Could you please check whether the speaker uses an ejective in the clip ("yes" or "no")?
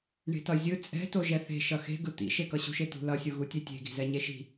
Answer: yes